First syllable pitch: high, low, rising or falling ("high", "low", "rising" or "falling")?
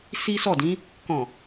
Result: high